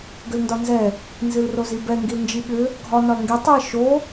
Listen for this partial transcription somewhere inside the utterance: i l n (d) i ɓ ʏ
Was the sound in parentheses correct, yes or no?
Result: no